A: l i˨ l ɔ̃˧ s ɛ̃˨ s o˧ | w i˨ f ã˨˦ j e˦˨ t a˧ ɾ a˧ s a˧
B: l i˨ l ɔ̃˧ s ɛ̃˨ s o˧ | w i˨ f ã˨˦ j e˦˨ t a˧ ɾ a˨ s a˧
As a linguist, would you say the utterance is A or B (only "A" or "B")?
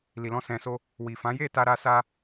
A